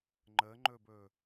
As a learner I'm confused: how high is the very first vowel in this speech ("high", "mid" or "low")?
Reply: mid